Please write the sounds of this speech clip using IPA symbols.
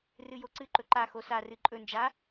r ɨ j o ǀ ɨ ǃ ɵ ǃ a x o s a r ɨ ǃʼ ɵ n d͡ʒ a

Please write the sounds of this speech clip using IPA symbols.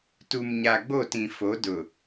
t u˨ m ɲ a˨ ɡ͡b o˦˨ t ĩ˨ f o˨˦ d ʊ˨

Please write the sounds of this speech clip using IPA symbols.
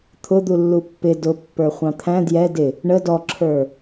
t̪ʰ ʊ d̪ u lː u pː ɪ d ʊ pː ə˞ χʷ ɑ̃ t̪ʰ æ̃ d j ɛ d ɪ | ɳ ə d ɔ ǁʰ ə˞

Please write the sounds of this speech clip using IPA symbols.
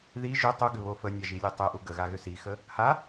ð i ʒ ʏ tˤ u ɡ ʏ β o f ə nʲ a ʒ i lʲ e tˤ ʏ ʔ u ɡ ə ɣ a ɣ ʏ s i x ə | h a

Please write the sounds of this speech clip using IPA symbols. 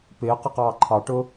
p ɪː q ɛ q ɑː ǃʰ ɑ ʈ ʊː

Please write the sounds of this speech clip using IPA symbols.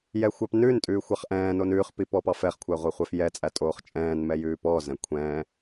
j ɛ xʷ ɑ p n ʉ n tʼ ʉː xʷ ɑ χ ʔ ɛ̃ː n o n ʉː χ p i p ɔ p ɑ f ɛ χ kʷʰ æ ʁʷ æ χʷ ɛ f j ɛ t͡sʼ æ tʼ oː χ t͡ʃʼ ɛ̃ː n m ɛ j ʉː p ɔː z ɛ̃ kʷʰ ɛ̃ː

